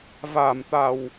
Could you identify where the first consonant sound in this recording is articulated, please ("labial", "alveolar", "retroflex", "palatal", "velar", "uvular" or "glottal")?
labial